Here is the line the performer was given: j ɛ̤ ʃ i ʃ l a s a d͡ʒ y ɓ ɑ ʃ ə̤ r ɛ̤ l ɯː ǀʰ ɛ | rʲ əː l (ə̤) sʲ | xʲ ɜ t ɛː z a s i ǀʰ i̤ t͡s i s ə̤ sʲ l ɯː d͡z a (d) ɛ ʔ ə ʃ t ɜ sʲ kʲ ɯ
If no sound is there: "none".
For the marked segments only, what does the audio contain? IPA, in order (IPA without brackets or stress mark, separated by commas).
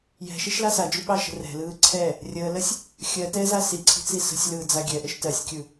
ə, ɡʲ